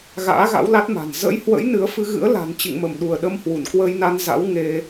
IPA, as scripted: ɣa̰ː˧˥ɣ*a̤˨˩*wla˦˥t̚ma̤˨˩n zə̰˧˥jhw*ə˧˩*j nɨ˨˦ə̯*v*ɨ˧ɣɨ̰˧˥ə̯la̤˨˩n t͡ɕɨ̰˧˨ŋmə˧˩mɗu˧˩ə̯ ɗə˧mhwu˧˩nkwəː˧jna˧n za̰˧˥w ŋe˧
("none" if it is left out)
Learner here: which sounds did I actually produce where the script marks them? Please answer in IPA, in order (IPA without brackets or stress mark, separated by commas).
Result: a̰˧˥, ə̰˧˥, f